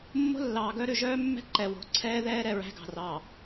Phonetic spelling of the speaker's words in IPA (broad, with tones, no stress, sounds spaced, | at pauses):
mː o̤˦ lː ɑː˨ ɡ œ˦ ɾ ʉ˨ ʒ œː˦ mː ɛ̤˦ ǃ ɛ˨ w o̤˨ ǀʰ ɛː˦ ð ɛː˦ ɾ ɛ˨ ɹ æ̤˦ ɡ ɑ̤˨ r ɑ˨